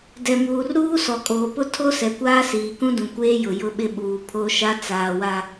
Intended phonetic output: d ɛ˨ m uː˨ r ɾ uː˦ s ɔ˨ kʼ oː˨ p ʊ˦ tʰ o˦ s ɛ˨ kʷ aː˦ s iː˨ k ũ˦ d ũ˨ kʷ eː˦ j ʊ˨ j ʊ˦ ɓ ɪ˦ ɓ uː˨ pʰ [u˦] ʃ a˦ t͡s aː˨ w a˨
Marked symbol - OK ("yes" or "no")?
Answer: no